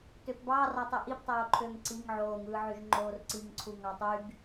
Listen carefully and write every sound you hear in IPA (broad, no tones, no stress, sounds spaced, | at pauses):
t ø p b ɑː r ɑ tˤ y ʔ i p tˤ oː ǃʰ øː ŋ ǀ i ŋ ʕ oː ŋ ɯː ʕ y ʒ ŋ͡ǃ oː r ǀ i ŋ ǀʰ u ŋ ɑ tˤ y ɡ